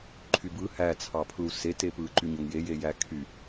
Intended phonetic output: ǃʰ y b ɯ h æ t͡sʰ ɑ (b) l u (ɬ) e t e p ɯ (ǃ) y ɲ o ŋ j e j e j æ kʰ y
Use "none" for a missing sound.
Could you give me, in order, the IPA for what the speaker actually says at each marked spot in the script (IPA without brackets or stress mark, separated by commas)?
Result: pʰ, s, ǃ